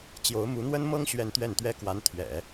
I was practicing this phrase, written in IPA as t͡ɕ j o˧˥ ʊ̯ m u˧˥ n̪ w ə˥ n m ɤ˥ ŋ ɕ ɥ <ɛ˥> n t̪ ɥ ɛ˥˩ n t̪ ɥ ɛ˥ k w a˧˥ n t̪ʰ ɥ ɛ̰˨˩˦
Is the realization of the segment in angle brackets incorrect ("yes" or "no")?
yes